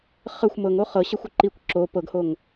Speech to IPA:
χ ə xʷ m ɤ ŋ o χ ɤ ɕ ɛ xʷ ə ǃ i kʷ ǁ o p ɤ ɡ h o ŋ

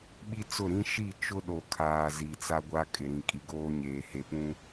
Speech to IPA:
ɓ i˦ t͡s ʊ˦˨ ɾ ĩ˦ ʃ i˦˨ t͡ʃ ʊ˦ ɗ o˨ kʰ aː˨ z i˨ t͡s a˦ ɡʷ a˦ kʼ ɪ˨ ɾ ĩ˨ kʼ i˨ ɡ oː˦ ɲ eː˨ h e˨ p ũ˦

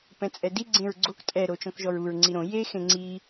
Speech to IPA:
p ɛ̃ t͡sʼ ɛ d i ɡ͡ǀ ẽ ɹ ɡ͡ǀ o k tʼ ɛ ɾ o t͡ʃ ɔ̃ k ʒ ɔ ɹ u ɹ ŋ͡ǀ i ɾ õ j e x ẽ ŋ͡ǀ i

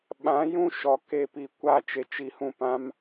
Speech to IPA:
ɓ ã˨˦ j ũ˦˨ ʃ ɔ˨ k e˦˨ p i˧ kʷ a˦˨ t͡ʃ e˨ t͡ʃ i˧ h ũ˦˨ p ã˦ m

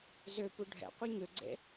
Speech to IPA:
z ø p u ɖʱ ɛ̰ qʷ ə˞ ɲ ø ɡ͡ǀ ḛ

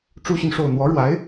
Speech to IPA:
ʈ͡ʂ u˥ ɕ y˨ n ʂ o˥˩ ʊ̯ n̪ w ɔ˧˥ ɻ w a˧˥ ɪ̯

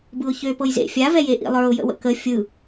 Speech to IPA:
b ɯ ʊ̯ ç ø p ɤ j z ḛ fʲ a v ɛ j e ʔ ḭ lˠ ə˞ ʊ̯ j ə̰ w ə̰ k ə fʲ ɯ

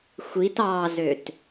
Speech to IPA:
xʷ i t ɑ z ø t

